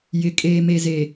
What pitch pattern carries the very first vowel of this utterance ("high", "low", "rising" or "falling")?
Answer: low